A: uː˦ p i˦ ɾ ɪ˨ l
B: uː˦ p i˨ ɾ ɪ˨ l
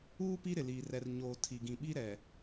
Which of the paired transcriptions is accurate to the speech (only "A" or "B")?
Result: A